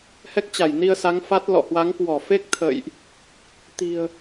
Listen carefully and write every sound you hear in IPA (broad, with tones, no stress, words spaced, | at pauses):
hɛ˦˥k̚t͡ɕa˧˩jni˧ə̯ sa˨˦ŋfa˦˥t̚ lɔ̰˧˨hwa˨˦ŋkwɔ˧˩ fe˦˥k̚t̪ʰə̰˧˨jʔ | t̪i̤˨˩ə̯